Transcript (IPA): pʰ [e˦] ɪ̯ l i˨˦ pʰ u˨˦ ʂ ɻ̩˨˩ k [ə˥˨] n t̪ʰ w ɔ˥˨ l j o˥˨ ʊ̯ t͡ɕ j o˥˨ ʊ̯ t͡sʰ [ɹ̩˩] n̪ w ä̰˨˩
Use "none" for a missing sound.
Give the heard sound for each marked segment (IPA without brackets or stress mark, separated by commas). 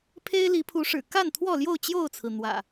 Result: e˦, a˥˨, ɹ̩˩